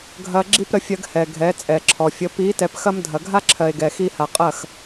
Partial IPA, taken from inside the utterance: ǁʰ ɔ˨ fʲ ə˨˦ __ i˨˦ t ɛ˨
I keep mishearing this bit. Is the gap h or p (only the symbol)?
p